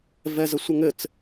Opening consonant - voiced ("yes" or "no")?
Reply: yes